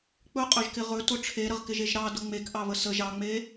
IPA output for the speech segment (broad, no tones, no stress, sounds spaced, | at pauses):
k͡p ɵ qʼ ɵ ʒ k ɪ ʁ ɵ t ʊ ʈ͡ʂʰ e ɾ ə ʁ k ɪ ʒ e ʒ ɾ ɑ d ʊ ŋ͡m e k ʔ ɑ β ə s ə ʒ ɑ ŋ͡m e